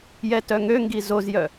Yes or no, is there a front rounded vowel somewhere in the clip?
yes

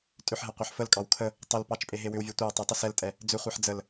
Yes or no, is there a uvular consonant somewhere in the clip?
yes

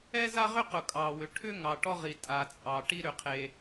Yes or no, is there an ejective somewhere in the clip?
yes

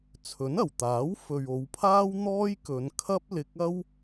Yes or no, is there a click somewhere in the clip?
no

